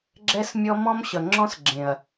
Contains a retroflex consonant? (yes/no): no